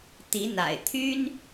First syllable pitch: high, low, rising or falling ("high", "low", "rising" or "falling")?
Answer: rising